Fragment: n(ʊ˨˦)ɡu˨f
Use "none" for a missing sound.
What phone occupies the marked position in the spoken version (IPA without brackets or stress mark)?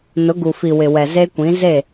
ʊ˨˦